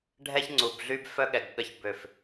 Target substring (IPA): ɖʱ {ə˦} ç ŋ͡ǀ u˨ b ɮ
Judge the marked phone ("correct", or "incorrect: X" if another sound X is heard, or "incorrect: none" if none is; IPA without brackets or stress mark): incorrect: ɛ˦